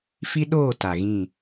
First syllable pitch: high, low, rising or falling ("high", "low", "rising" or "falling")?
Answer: high